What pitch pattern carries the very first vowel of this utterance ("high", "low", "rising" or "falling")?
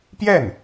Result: falling